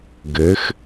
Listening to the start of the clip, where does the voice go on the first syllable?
rising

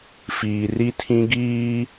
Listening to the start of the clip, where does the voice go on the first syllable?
low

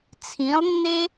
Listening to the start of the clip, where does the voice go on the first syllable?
rising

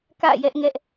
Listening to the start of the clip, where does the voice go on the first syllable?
falling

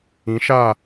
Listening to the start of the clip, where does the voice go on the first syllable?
rising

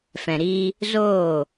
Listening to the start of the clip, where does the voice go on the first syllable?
low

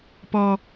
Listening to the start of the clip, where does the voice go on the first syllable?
low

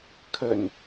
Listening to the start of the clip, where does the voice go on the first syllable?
low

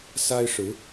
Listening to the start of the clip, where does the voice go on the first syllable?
high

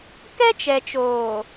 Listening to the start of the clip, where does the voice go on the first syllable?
high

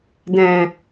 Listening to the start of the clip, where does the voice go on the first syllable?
low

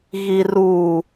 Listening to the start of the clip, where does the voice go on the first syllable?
low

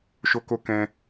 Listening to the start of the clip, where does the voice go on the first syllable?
high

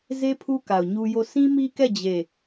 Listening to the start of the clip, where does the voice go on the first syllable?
high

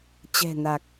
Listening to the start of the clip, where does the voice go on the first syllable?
low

